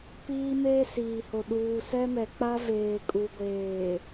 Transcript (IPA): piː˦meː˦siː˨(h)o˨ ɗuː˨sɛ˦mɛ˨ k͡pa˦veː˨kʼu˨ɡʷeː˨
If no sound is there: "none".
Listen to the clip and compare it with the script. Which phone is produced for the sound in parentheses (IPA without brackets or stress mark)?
h